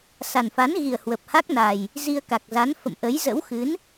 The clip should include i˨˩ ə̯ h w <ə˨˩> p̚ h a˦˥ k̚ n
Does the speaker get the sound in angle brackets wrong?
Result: no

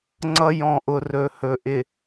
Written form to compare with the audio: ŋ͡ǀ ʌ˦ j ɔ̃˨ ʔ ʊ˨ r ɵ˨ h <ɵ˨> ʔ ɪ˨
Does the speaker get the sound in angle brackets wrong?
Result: no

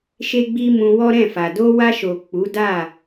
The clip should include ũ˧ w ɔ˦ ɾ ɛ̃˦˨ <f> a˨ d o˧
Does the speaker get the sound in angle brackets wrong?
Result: no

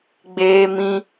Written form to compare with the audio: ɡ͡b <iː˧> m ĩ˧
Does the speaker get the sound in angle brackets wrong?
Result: yes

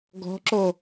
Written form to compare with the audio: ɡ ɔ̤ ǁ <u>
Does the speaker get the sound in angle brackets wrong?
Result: yes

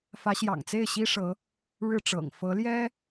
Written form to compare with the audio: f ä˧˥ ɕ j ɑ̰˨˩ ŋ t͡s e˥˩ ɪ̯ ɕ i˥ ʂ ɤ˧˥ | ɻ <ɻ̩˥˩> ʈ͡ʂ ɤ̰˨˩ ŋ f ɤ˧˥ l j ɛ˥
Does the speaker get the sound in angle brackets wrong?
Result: no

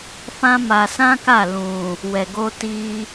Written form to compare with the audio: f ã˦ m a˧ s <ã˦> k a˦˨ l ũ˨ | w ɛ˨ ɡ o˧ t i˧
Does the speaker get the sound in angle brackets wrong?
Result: no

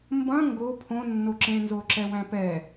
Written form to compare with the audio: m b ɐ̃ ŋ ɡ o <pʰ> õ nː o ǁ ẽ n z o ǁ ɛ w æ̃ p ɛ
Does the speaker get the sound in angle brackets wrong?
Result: no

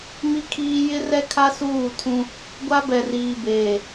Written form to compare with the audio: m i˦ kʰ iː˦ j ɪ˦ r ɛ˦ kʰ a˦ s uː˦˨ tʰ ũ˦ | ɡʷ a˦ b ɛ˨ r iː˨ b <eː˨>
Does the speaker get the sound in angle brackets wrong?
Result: no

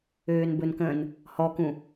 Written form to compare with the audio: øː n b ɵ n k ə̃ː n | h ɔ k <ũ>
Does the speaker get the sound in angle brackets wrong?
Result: no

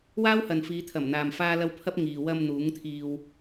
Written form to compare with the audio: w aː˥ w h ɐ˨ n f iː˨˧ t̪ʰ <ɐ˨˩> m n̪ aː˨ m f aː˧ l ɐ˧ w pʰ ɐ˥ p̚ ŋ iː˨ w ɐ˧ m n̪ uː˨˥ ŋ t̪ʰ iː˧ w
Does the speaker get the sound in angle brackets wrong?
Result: no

